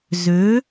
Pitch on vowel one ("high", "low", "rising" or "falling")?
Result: rising